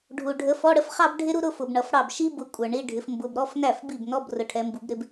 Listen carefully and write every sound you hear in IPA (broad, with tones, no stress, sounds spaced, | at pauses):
ɖʱ u˨ ɖʱ ə˨˥ f ɔ˧˥˧ ɽ ə˥ f χ ɑ˥ b ɖʱ ɪ˥ ɾ u˥ ɾ ʊ˥˧ f ʊ˨ b ɳ ʌ˨ f ɽ ɑ˥˩ b ʃ i˥ b ʊ˨˥ kʷʼ ə˞˨ ɳ i˧˥˧ ɖʱ ɪ˨˥ f m b ʊ˧˥˧ b ɾ ɔ˧˥˧ f n æ˥˩ f b i˥˩ b n ɔ˧˥˧ b r ʊ˨˥ ʈʰ ɛ˨˥ m b u˨˥ b ɾ ɪ˥ b